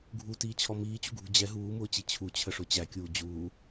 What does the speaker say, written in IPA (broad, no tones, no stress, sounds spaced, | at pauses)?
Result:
ɡʱ u t iː t͡ɕʰ ɔ m iː t͡ɕ ṳ ɡʱ ṳ d͡ʑ ɛ ɦ uː m ʊː t͡ɕ i t͡ɕʰ u t͡ɕʰ ə ʂ ʊ t͡ɕ æ kʲ uː d͡ʑ uː